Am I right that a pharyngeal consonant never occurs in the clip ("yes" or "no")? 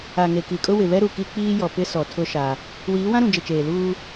yes